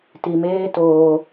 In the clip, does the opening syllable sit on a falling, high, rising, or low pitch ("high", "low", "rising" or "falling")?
low